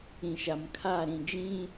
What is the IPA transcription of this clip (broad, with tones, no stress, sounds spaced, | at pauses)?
ĩ˨ ʃ a˨ m kʰ a˦˨ ɾ ĩ˨ d͡ʒ ĩ˦